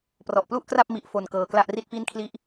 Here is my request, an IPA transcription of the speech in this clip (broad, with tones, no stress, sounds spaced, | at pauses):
p r ɔ˨˩ ʔ p l u˥˩ ʔ k r a˥˩ p̚ m i˦˥ ʔ f o˧ n k ɤː˧ k l a˥˩ ʔ r i˥˩ t̚ p i˥˩ n kʰ l i˥˩ ʔ